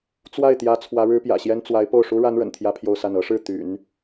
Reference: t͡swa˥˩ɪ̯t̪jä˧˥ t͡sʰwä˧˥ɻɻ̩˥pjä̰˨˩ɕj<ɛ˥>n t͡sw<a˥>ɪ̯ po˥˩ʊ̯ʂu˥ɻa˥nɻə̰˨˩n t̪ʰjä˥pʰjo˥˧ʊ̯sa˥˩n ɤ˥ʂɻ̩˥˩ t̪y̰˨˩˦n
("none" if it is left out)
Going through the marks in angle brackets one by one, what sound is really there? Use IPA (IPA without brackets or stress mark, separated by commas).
ɛ˥, a˧˥